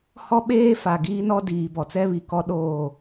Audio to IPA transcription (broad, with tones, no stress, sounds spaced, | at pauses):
h ɔ˦ ɓ eː˦ f a˨ ɡ iː˦ n ɔ˦ d iː˨ b ɔ˨ t͡s ɛ˦ β i˨ k ɔ˦ ɗ oː˦˨